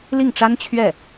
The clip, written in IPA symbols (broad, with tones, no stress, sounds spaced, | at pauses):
l i˥˩ ŋ ʈ͡ʂ a˥ n t͡ɕʰ ɥ ɛ˥˩